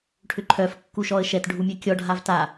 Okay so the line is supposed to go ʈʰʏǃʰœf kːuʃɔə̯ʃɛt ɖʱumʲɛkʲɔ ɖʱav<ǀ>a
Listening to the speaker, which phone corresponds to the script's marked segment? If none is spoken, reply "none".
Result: t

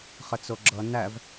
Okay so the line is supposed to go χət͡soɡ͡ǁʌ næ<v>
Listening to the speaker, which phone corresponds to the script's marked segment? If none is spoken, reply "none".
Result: v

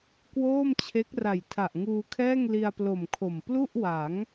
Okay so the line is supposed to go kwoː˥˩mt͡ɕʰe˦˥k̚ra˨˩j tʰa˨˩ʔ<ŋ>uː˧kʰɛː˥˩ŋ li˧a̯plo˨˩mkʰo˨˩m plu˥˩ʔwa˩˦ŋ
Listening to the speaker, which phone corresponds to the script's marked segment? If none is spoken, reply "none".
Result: ŋ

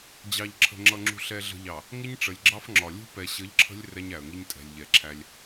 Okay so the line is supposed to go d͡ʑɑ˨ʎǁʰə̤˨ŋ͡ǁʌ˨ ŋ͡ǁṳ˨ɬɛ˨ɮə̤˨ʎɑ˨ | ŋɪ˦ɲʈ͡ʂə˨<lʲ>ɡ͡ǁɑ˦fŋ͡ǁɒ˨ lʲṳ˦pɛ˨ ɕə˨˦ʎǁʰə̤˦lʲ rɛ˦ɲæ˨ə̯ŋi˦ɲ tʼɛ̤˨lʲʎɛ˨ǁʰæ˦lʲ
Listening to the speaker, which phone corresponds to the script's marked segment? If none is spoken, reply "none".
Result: lʲ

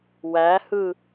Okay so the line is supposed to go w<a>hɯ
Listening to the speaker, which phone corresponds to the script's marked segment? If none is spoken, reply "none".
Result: æ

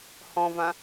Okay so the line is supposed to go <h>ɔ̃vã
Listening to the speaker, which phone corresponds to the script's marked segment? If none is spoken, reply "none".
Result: h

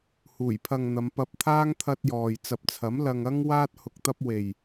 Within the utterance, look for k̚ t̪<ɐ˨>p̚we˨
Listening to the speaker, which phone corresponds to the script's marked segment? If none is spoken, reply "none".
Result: ɐ˧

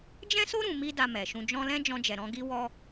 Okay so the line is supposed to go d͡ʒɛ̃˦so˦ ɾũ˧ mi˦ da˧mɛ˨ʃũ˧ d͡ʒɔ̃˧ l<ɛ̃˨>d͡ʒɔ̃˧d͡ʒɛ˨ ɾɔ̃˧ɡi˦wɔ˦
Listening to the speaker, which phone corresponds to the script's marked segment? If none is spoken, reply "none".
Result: ɛ̃˦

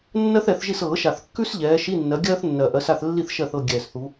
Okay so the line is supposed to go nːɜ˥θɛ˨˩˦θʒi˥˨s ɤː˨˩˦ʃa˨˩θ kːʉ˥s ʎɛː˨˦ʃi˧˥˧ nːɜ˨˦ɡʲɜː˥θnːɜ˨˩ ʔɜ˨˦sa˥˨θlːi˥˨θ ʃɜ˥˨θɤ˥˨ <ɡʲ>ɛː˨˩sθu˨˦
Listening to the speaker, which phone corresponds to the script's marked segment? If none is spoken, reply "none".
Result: ɡʲ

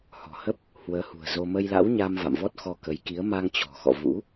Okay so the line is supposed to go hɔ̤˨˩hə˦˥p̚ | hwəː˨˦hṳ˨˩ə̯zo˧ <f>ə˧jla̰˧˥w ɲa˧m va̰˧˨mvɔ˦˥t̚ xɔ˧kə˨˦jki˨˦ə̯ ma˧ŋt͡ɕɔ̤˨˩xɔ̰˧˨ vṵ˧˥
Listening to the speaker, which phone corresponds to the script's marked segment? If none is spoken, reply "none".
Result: m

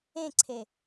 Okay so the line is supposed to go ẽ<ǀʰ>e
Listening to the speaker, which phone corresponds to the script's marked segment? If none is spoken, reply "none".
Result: ǀʰ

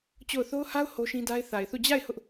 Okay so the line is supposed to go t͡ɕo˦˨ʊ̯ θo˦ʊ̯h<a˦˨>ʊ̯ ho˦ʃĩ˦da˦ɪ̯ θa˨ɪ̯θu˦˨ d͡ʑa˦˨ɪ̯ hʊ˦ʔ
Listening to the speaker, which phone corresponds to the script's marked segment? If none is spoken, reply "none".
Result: a˦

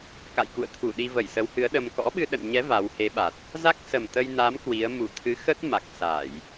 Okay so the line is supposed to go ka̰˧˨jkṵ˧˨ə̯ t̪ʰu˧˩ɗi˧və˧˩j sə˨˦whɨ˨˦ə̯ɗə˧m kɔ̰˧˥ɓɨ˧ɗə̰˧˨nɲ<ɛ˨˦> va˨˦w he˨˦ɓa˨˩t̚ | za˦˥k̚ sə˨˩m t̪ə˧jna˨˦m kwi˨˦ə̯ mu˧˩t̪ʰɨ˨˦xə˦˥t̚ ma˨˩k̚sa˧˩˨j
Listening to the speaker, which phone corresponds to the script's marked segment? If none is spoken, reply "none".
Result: ɛ˨˦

